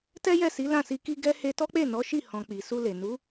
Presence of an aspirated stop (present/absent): absent